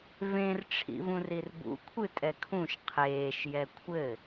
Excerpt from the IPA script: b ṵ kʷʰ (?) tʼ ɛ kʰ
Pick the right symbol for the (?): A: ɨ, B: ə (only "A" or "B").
A